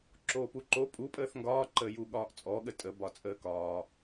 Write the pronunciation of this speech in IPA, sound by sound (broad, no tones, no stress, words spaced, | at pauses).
ǁoːpuǃo pʼupʼəːθ ŋɡɒːǃəːju ɠɒːʔt͡sʼɔɠə tʼəbɒt͡sʼəː kɒː